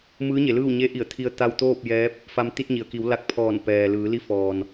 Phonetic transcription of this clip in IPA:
m ɯː˧˥ ɲ e˩˧ l ɯː˥˨ w ɲ e˧˥ ʔ i˧˩ ə̯ t̪ʰ i˧ ə̯ t̪ a˧ w t̪ oː˥˨ p̚ j ɛː˧˥ p̚ | f a˧ m t̪ i˧ t̚ ɲ i˩ ə̯ k i˩˧ w l a˧˥ k̚ pʰ ɔː˧˩ n p ɛː˩ l ɯː˩˧ l i˧˥ f ɔː˩ n

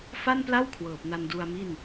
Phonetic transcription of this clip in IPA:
f a˥˩ n p l a˥˩ w kʰ w ɤː˨˩ p̚ n a˧ n d u˧ a̯ m i˥˩ n

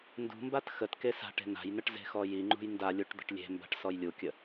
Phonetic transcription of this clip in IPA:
n d ṳ m b a t x ə t k e s a̤ ʈ e̤ n a̤ j n ə ʈ z e̤ x ɔ j i ŋ͡ǃ ṳ j n d a lʲ u ʈ d̪ ə̤ ʈ lʲ e̤ m b a̤ ʈ s ɔ j lʲ u kʲ ə

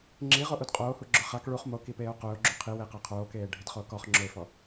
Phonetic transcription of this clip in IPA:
ŋ͡ǁ i ʁ o ʔ u d qʼ oː h u ɡ͡ǁ ʊ χ a k ɭ u χ m o k i p eː o̯ q ʊː ɡ͡ǁ u qʰ i w e q ɛ qʰ oː k eː ɖʱ ɪ d χ oː k ɔ χ ŋ͡ǁ ʊ e̯ f ɔ

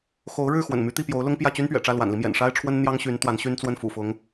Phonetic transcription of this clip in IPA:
x o˧˥ ʊ̯ ɻ ɻ̩˥˩ x w ə̰˨˩ n m y˧˥ t̪ i˥˩ p j o˧˥ ʊ̯ l ʊ˥ ŋ p j ä˥˩ t͡ɕ y˥ n p ɥ ɛ̰˨˩ ʈ͡ʂ ä˥˩ l w a̰˨˩ n l i˦ m j ɛ̰˨˩ n ʂ a˥ ɪ̯ ʈ͡ʂʰ w ə˥ n n̪ j ɑ˥ ŋ ɕ y˧˥ n t̪ w a˧˥ n ɕ y˥ n t͡s w ə˥˩ n f ṵ˨˩ f ʊ˧˥ ŋ

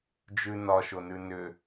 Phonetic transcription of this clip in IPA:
d͡ʒ ʉ n ɒ ʃ o n ʉ n ʏ

